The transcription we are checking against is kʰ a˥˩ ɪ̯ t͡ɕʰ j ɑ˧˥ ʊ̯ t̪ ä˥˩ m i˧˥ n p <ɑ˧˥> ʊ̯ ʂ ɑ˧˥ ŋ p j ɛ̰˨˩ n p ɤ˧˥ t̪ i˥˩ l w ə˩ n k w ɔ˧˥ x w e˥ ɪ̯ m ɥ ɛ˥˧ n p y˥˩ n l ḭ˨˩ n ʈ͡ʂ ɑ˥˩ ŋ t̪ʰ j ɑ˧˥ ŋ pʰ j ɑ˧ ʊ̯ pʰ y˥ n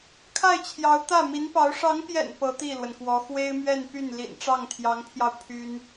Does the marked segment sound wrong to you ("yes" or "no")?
no